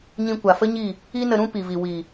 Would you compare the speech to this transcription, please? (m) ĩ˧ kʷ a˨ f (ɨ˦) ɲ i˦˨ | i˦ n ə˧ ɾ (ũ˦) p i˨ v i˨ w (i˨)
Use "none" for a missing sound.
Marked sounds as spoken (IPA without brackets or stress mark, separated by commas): ɲ, ə˦, ũ˦, i˨